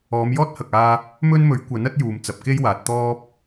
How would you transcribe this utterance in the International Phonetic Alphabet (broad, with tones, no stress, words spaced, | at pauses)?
ɔː˨˧mjɔː˥t̚hɐ˨k̚aː˧ | mɵ˥nmɵ˨˥ɥ kʷɐ˨˥nɐ˥t̚ juː˨mt͡sɐ˨p̚ ke˥jwaː˨t̚ t̪ɔː˥p̚